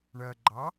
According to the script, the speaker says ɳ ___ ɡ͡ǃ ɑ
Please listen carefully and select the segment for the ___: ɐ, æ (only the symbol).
ɐ